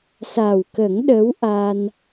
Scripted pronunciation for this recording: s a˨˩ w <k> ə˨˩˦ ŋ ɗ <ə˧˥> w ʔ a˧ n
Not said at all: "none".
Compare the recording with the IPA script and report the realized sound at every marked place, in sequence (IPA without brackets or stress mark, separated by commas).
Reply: k, ə˧˥